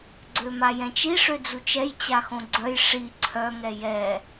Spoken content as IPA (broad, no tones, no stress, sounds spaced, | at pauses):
ɡ͡ǀ ø m a j ɛ̃ t͡ʃ i ʂ ø d͡z u t͡ʃ ɛ j t͡ɕ a x õ ɡ͡ǀ œ j ʂ i ǀʰ œ ŋ ɛ j ɛ